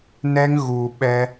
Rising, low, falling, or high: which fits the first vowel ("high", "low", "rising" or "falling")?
high